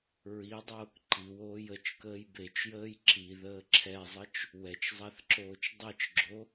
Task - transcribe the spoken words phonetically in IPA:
ɹ i dˤ oː k ǃ i w oː j ə t͡ʃ k əː j b e t͡ʃ j əː j ǁ i ð əː ǁʰ ɛ zˤ ə t͡ʃ | w ɛ t͡ʃ zˤ a θ ǁ oː t͡ʃ dˤ i t͡ʃ ɡ͡ǁ o

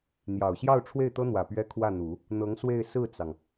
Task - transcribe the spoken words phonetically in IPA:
n̪ j ɑ˨˩ ʊ̯ ɕ j ɑ˥˧ ʊ̯ ʈ͡ʂʰ w e˥˩ ɪ̯ t̪ ɤ˥ n̪ w ä˨˩ p ɥ ɛ˥ kʰ w ä˥˩ n̪ u˨˩˦ | n̪ ɤ˧˥ ŋ s w e˥˧ ɪ̯ s ɹ̩˥˩ t͡s ɑ˩ ŋ

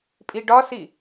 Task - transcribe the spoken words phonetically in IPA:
pʼ i ɖ ɒ s i

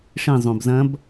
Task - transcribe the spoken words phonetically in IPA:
ʂ ĩ zˤ õ b z ɐ̃ b

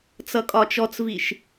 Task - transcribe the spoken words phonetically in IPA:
t͡s ʌ kʼ ɒ t͡ʃ ɔ t͡s v i ʃ

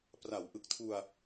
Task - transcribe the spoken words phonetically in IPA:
p r a˩˦ w ʔ ɯ˨˩ k̚ tʰ u˧ a̯

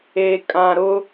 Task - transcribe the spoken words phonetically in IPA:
e˨ kʼ ã˨ ɾ ʊ˦

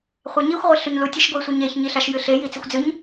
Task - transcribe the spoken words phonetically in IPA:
χʷ a ɲ i xʷ ʁʷ e ɬ ʉ ɲ l u tʲ e ʃ ɡʷ i sʷ ɨ ɲ e ç ɲ i ɬ a ʃ j ɨ ɬ e j i t͡s i xʷ d͡z ɨ ɲ

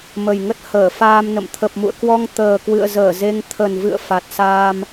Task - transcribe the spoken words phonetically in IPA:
m ə˨˩ j ŋ ə˦˥ t̚ h əː˧˩ f aː˧ m n ə̰˧˨ m t̪ʰ ə˨˩ p̚ m ṵ˧˨ ə̯ k w ɔ˧ ŋ t̪ əː˨˩ k w ɨ̰˧˨ ə̯ z əː˧˩ z e˧ ŋ t̪ʰ ə˨˩ n v ɨ̰˧˨ ə̯ f a˨˩ t̚ s aː˧ m

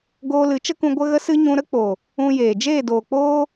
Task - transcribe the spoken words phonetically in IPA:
ɡ oː˧ l ɨ˨˦ t͡ʃ ə˦ k ũ˧ ɡʷ ə˧ ɣ ə˧ s ɨ˧ ɲ ũ˧ ɾ ə˦ k͡p o˨ | ũ˧ j eː˨ d͡ʒ eː˦˨ d oː˨ k͡p oː˦

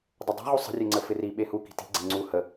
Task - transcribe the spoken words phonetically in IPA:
dˤ ə dˤ i̤ ʁ u sˤ ə̤ rʲ e ŋ͡ǀ ə f ɪ r i ɓ e h u k i̤ t i̤ ɡ͡ǀ e ŋ͡ǀ u h ə

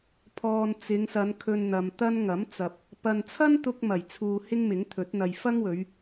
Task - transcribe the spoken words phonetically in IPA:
pʰ ɔː˨ n t͡s ɪ˨˧ ŋ s ɐ˨˧ n kʰ ɵ˧ n n̪ ɐ˨ m t̪ ɐ˥ n ŋ ɐ˨˥ m t͡s ɐ˨ p̚ | p ɐ˨ n t͡sʰ ɐ˥ n t̪ ʊ˥ k̚ m ɐ˨˩ j t͡sʰ uː˧ h ɪ˥ ŋ m ɪ˨˥ ŋ t̪ʰ ɵ˨˥ t̚ n̪ ɐ˨ j f ɐ˥ ŋ w ɵ˨˧ ɥ

